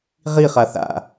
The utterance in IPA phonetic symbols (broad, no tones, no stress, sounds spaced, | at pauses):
ʁ i χ a θ a̰